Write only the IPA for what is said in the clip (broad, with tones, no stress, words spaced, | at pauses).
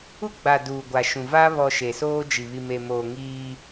u˦ɡ͡ba˨ duː˨ɡʷa˨ʃũ˨ va˦ βɔ˨ ʃe˨soː˦d͡ʒi˨ βi˨me˨moː˨ ŋiː˦